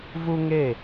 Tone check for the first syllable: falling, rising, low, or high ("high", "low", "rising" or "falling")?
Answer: high